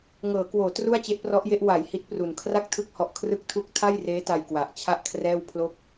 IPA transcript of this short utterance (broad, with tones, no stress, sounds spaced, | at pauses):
ŋ ɤː˩˦ k w oː˩˦ t r u˥˩ a̯ t͡ɕ e˦˥ ʔ p r ɔ˦˥ ʔ j e˦˥ ʔ w a˩˦ j h i˦˥ t̚ p r u˨˩ n kʰ r a˥˩ k̚ tʰ ɯ˦˥ k̚ h ɔ˨˩ ʔ kʰ r ɯ˥˩ k̚ tʰ u˥˩ k̚ tʰ a˥˩ j r eː˦˥ t a˧ j k w a˨˩ ʔ t͡ɕʰ a˥˩ ʔ kʰ r ɛː˥˩ w pʰ l o˥˩ k̚